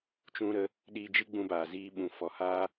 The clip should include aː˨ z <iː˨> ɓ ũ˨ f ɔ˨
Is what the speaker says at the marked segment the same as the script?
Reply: no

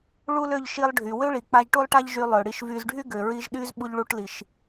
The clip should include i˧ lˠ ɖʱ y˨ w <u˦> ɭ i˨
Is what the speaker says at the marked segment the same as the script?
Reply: no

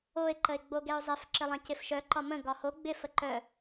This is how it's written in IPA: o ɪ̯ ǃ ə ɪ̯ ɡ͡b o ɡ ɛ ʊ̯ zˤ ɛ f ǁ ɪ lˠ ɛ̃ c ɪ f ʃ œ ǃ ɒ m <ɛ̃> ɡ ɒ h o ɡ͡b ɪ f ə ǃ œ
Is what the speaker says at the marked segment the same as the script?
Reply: no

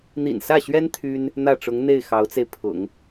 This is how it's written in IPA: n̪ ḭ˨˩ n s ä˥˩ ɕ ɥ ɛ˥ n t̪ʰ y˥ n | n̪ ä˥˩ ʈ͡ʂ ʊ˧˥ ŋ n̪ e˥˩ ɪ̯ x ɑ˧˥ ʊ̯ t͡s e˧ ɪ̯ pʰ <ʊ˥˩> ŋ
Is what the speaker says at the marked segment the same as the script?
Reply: no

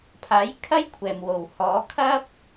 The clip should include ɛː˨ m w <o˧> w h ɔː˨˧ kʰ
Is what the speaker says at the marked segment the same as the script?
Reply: no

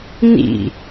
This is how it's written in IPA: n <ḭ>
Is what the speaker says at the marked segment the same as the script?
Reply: yes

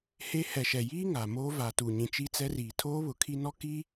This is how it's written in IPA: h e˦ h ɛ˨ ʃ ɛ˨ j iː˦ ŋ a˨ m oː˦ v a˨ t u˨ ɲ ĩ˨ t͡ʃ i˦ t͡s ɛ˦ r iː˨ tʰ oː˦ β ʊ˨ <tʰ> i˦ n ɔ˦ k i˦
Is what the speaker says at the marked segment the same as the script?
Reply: no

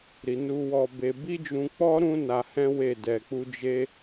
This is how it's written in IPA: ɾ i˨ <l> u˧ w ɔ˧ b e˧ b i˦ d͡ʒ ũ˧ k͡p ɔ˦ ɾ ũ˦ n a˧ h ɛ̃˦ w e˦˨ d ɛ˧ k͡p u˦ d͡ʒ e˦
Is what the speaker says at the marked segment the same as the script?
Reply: no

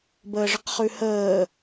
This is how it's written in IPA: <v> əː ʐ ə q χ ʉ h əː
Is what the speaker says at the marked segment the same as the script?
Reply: no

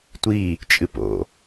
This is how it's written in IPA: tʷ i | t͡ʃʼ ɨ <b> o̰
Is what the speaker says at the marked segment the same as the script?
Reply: no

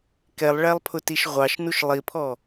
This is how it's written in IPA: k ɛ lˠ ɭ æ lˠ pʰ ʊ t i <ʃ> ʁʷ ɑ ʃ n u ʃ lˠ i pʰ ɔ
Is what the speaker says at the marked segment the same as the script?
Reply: yes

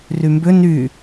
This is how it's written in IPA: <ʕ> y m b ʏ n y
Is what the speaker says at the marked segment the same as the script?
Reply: no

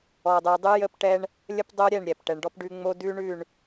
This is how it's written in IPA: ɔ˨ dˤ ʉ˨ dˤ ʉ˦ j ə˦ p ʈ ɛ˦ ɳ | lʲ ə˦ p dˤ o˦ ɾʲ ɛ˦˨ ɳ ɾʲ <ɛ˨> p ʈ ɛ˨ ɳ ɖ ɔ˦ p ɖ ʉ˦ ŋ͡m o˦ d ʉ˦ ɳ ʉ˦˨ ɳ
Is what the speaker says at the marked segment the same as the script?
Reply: yes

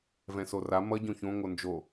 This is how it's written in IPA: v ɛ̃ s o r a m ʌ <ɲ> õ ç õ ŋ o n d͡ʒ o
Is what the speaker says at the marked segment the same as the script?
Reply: no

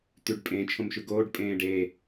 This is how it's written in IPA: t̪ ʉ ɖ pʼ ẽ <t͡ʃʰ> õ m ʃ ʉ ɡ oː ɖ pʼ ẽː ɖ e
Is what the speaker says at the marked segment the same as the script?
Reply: yes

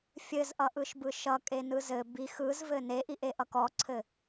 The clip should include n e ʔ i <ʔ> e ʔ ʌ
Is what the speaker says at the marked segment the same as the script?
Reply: yes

